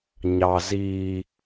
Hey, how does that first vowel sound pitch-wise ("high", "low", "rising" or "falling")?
low